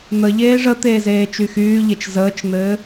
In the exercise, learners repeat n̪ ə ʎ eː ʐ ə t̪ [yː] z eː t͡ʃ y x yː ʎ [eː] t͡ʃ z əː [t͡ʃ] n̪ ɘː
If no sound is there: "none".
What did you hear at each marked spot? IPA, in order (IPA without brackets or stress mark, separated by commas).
eː, e, t͡ʃ